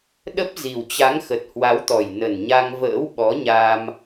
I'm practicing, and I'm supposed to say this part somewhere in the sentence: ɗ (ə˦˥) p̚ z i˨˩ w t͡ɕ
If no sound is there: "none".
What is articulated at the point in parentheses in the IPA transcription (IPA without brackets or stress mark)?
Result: ə˦˥